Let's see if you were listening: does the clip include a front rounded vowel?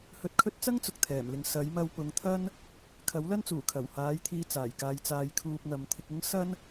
no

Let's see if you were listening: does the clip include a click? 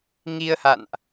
no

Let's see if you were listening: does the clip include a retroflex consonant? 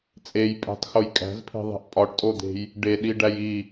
yes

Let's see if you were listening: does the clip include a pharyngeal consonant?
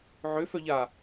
yes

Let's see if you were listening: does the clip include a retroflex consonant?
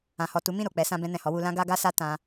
no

